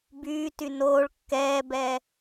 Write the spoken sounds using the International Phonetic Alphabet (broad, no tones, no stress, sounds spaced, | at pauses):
b yː t y n oː ɭ kː ɛː b ɛː